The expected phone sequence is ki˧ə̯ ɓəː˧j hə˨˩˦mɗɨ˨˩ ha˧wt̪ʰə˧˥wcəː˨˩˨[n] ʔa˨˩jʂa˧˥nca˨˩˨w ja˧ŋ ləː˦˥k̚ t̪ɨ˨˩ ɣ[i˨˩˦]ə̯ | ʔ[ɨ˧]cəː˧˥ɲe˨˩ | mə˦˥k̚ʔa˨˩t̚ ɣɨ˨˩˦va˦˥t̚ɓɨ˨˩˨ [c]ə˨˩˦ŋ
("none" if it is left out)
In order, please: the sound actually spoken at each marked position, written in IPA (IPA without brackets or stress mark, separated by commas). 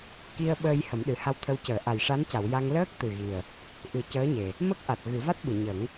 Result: none, i˨˩, ɨ˨˩˦, ɲ